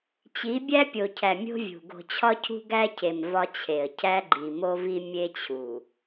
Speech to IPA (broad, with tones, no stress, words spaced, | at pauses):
t͡ɕi˨˦bʲæ˦pʲo˨cʰæ˨ mʲo̤˦vʲṳ˨ ɡo̤˨t͡ɕʰɒ˦cʰṳ˦ ɡæ˦cʰe˨m vɒ˦t͡ɕʰe˨ə̯ cʰæ˦ɡ͡ǃi˨ mo˦vi˦mʲe˦ t͡ɕʰu˨